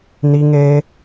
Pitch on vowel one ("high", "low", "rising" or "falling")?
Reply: high